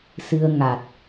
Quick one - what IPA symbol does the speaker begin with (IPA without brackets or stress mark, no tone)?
s